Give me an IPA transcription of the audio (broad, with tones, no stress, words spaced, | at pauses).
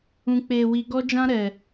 ũ˨k͡peː˨wi˨ ɡɔ˦d͡ʒã˦ ɾɛ˨